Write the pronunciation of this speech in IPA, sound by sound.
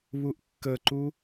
β u ʔ kː ə ǃ u

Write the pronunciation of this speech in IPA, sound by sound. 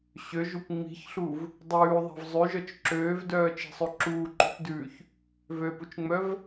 ɕ ø ʒ u p ŋ͡m i̤ ç ɬ u v | dˤ ʉː ðˤ e̤ v zˤ ʉ ʒ œ t͡ʃ ǁ øː v d œː t͡ʃ i̤ sˤ ø ǁ uː ǃ ṳ t d ʉː ç | v ø p u t͡ʃ ŋ͡m œ v

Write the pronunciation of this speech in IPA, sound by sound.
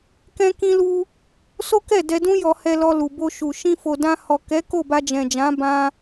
k ɛ̃˦ k ĩ˦ l u˦ | s o˦ k ɛ˦˨ d ɛ˧ d ũ˦ j ɔ˧ h ɛ˧ l ɔ˧ l u˨ b o˧ ʃ u˨ ʃ ĩ˧ f o˨ d ã˧ h ɔ˨ k ɛ˨˦ k o˦˨ b a˧ d͡ʒ ɛ̃˨ d͡ʒ ã˨˦ b ã˧

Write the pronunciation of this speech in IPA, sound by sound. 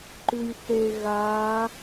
ǃ ʉ j θ e ɣ a

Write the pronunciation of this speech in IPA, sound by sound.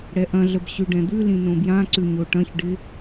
ɽ ɛ ʔ ɐ̃ ɮ ə b ɕ ʉ ɖ ɛ̃ d̪ ʉ l ĩ n õ b j ã ǀ ʉ ɲ o ʈ ɐ̃ ç ɖ ɪ

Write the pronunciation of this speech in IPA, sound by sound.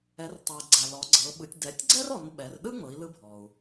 ɛ˩˧ r tˤ ɤ˩ i̯ ɡ͡ǀ a˩ l ɔ˩˧ ɡ͡ǀ ɤ˩˧ ɓ ɯ˩˧ tʲ d ɛ˩˧ tʲ ɡ͡ǀ ɛ˥ r ɔ˩˧ n ɓ ɛ˩˧ r ɗ ɯ˥ ŋ͡m ɤ˩˧ i̯ l ɯ˧ bʱ ɔ˩ u̯

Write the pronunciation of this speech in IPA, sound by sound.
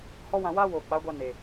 h ɔ˦ w ã˧ w aː˦ w oː˨ k͡p a˨˦ ɡʷ a˧ n e˨

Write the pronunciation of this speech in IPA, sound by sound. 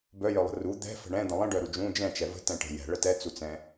b œ j œ lˠ ə̤ r u d̪ ɛ̤ f ə̤ ɳ ɛ̃ d̪ ə̃ lˠ ə̃ ɖ œ ɾ u d͡ʒ ũ d͡ʒ ɛ̃ t͡ʃ ɛ v ə̤ t ɛ̃ ʈ ə̤ j ɛ̤ ɭ ə t ɛ t͡s u t͡s ɛ̃

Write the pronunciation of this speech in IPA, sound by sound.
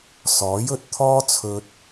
s ɔː˨˥ j ɵ˨ t̚ t̪ʰ ɔː˥ t͡sʰ ɵ˧ t̚

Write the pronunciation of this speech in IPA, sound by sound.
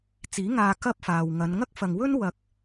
t͡s iː˨˥ ŋ aː˧ k ɐ˥ p̚ f aː˨ w ŋ ɐ˨˧ n ŋ ɐ˥ k̚ f ɐ˨ ŋ w ɵ˥ n w ɐ˨˥ k̚

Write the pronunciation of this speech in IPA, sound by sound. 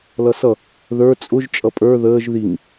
l ʌ s ʌ | ð ə˞ t͡sʼ ʊ ʒ t͡ʃʼ ʌ pʼ ə˞ ð əː ʒ ð i ŋ

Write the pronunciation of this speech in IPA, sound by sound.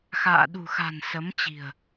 x a̰ː˧˨ ɗ ṳ˨˩ x a̤˨˩ n s ə˨˦ m t͡ɕ i̤˨˩ ə̯

